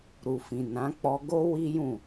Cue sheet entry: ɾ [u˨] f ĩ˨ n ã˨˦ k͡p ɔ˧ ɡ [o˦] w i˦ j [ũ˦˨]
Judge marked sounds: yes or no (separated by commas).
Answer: yes, yes, yes